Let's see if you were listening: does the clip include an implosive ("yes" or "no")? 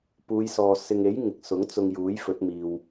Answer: no